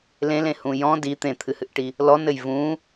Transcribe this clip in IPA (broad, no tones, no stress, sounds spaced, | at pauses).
l ẽ l ẽ h ũ j ɔ̃ d i t̪ ẽ t̪ʰ ɨ h ɨ ʔ ʈ i | l ɔ n ɘ j v ũ